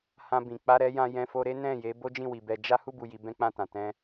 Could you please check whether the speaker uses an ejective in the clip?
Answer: no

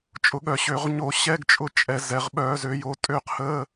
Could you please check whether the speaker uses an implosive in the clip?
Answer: yes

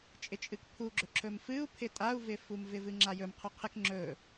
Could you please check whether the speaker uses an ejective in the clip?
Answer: yes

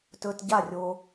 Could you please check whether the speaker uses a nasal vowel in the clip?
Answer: no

